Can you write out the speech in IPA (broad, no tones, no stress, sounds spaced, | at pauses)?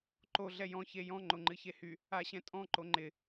ǃ o ɮ ɛ j ɔ̃ ç e j ɔ̃ ŋ͡ǃ o ŋ͡ǃ ɨ ç e h y | a ɕ ɛ̃ tʼ ɔ̃ ǃ o ŋ͡ǃ ɪ